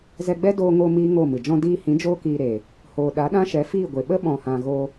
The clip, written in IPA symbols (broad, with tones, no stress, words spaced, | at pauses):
zɛ˧ɡ͡bɛ˦ doː˧ŋo˧ miː˦ŋo˦˨mɨ˨ d͡ʒɔ̃˧diː˧hĩ˨˦ d͡ʒoː˦kiː˧ɾe˨ | hoː˨ɗa˨˦ɗã˦ʃɛ˨˦ fiː˦˨ɡʷe˨ ɓə˦ɓɔ̃˨hã˨ ɣo˧